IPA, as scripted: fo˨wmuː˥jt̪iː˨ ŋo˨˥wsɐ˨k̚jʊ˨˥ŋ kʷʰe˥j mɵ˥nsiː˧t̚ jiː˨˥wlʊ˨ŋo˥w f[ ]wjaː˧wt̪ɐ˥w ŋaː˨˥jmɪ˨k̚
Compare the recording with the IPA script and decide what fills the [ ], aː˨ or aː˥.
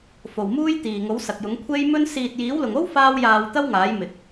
aː˥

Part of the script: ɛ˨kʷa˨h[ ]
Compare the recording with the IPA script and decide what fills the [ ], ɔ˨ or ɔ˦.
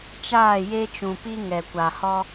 ɔ˦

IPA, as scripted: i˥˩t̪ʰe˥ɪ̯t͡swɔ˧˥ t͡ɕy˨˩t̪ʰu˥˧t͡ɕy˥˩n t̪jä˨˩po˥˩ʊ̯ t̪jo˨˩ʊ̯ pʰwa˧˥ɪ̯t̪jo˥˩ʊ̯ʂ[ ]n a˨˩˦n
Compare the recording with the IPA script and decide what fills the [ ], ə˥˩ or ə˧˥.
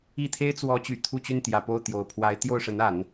ə˧˥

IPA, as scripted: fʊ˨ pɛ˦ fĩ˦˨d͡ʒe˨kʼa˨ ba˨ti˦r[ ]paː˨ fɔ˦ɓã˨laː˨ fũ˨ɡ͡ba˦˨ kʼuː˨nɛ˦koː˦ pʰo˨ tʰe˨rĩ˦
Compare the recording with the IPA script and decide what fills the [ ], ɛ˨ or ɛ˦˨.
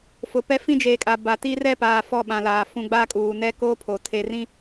ɛ˦˨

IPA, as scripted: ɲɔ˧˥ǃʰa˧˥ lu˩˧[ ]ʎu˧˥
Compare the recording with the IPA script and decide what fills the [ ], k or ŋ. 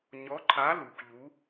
k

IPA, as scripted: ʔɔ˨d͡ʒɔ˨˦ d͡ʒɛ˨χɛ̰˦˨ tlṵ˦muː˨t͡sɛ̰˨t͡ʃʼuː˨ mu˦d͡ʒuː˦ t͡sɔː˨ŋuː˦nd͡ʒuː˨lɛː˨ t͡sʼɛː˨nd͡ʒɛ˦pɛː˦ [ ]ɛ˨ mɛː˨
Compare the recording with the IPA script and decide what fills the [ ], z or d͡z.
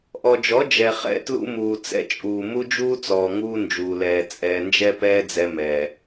d͡z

